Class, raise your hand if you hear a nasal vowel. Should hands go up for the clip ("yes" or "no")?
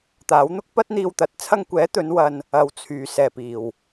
no